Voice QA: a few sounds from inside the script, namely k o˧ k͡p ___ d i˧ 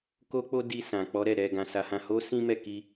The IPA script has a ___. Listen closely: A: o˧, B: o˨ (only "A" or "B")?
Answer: A